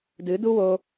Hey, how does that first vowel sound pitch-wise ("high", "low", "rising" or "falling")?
rising